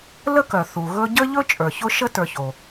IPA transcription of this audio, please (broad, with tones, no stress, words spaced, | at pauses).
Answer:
lə˥kœ˩ θu˩ɣɵ˦ ɟə˥ʎɵ˥ t͡ʃʼə˞˩çʊ˥ ʃə˥ tə˞˨ço˩